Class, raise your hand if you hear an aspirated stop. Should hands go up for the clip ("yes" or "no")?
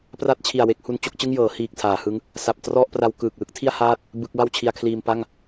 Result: yes